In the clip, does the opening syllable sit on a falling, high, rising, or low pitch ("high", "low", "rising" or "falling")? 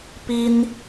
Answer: high